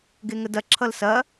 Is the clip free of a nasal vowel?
yes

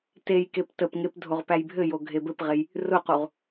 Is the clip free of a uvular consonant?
no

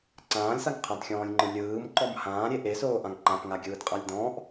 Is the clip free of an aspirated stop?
no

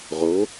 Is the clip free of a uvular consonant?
no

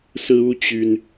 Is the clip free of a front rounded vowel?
no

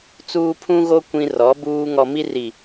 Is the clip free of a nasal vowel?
no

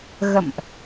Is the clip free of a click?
yes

